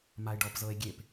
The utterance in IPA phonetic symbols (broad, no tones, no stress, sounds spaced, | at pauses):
m a e̯ ɖ ɔ p z ɤ e̯ ɡʲ e p